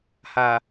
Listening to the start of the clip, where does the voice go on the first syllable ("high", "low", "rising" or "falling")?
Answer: low